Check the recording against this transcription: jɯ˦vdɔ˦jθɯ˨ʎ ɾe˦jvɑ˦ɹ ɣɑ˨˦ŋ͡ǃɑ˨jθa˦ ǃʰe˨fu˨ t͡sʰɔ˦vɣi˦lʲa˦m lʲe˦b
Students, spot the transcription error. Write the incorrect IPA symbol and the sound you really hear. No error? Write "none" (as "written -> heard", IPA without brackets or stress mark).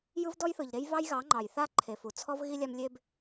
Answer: ɹ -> j